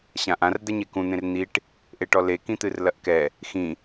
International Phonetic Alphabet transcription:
ɕãʔãr d̪ɛɲekũ n̪ẽrn̪iʈ | ʔeʈɔle kĩt̪ɨrlɐʔkɛ | xĩ

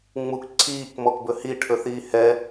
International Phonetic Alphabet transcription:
ŋ͡muk ǀʰiːkmɔkbɵ hiʈʰɵ θiːhɛ

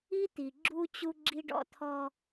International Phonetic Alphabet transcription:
i˦t̪i˨ ɡ͡ǁu˦ t͡ɕu˦ɡ͡ǁi˦ɖɔ̰˦ t̪ʰɔ˦

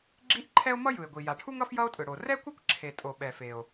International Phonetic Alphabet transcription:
ɡ͡ǁi˥ʔǃʰɛ˥o̯ mʌ˥jɯ˩e̯ɡʷi˩ ja˩ʈʰu˥ŋʌ˥f jʌ˥o̯tʼɯ˩ɽo˩ rɛ˥kʷʌ˥kʷ ǁʰe˩tʼo˩ɓɛ˩fe˩o̯

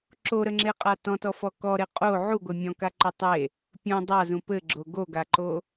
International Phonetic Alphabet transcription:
ǁoɾəŋ͡ǁeqʼa tɔ̃tɔfɔ kɔɾe qʼo ʕuɡʷɘ mʲɔ̃kaǃo tˤe | pʲũ dˤazũ pɘɡ͡ǁo ɡoɡaǃo

